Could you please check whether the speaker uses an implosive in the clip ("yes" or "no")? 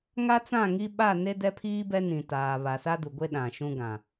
yes